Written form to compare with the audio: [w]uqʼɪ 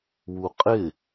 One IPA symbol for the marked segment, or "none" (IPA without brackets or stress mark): w